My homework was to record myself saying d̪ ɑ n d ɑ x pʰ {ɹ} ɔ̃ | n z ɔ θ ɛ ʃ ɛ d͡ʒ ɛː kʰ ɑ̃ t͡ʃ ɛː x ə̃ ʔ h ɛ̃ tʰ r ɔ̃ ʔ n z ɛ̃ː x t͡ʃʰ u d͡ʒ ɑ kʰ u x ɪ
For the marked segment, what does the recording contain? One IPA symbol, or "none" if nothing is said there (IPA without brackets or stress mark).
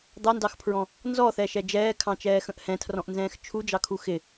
ɹ